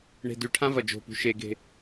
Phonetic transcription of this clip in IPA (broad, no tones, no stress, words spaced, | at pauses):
ɳe̤dʉʈʰã vɐd͡ʒo̤pṳ ʃeɡe̤